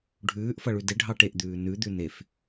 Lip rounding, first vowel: rounded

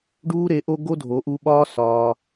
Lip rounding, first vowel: rounded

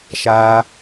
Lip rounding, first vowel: unrounded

